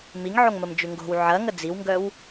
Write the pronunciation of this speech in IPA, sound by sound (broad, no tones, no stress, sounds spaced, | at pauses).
m i ŋ ʕ o ŋ m ə m d͡ʒ ʉ ŋ ɡ o̤ w ʕ ɐ ŋ ə d͡z i w ŋ ɡ œ w